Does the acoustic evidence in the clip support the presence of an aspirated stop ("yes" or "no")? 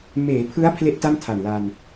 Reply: yes